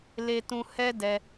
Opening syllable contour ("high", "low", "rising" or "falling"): high